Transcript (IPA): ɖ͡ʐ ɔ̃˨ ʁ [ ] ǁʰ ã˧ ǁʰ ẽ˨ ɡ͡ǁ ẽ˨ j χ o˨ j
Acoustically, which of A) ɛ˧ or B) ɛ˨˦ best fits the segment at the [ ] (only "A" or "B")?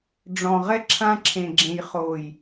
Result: A